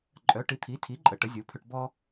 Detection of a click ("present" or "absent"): present